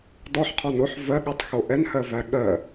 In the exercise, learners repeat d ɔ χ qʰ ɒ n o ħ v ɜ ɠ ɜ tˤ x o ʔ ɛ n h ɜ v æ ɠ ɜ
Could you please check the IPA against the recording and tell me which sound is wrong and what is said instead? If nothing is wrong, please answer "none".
χ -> ħ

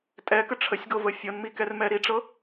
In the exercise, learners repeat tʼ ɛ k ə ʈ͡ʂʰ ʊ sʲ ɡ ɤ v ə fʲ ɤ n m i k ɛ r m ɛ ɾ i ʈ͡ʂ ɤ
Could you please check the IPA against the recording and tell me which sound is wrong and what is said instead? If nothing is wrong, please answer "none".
ʊ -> ə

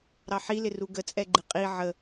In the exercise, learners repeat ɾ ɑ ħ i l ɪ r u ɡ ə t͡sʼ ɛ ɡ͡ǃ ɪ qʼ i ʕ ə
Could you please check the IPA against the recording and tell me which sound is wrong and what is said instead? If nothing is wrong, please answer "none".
none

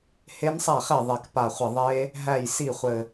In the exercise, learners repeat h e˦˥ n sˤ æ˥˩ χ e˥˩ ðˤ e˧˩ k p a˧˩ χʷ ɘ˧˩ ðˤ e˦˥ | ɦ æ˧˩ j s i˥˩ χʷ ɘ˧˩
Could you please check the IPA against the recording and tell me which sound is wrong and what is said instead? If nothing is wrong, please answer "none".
none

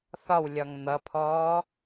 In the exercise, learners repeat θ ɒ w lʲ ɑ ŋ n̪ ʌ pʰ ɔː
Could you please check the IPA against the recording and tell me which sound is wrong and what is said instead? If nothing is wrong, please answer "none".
ɑ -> ɒ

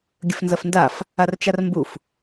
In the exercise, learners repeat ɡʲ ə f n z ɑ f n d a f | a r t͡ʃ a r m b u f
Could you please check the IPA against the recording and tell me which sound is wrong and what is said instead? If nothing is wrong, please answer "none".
ɑ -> ɐ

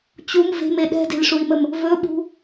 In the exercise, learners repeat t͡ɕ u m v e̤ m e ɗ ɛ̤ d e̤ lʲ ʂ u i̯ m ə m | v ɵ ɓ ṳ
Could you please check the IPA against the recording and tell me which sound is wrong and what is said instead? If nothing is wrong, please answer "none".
none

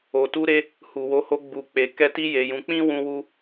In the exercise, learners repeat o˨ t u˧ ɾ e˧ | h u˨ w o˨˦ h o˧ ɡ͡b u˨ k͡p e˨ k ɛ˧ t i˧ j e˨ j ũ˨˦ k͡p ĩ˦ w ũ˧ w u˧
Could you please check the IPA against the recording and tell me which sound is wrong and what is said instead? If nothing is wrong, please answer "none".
none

